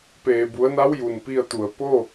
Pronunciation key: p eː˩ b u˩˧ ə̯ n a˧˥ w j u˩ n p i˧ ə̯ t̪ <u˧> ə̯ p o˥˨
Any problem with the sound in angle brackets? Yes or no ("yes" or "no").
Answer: yes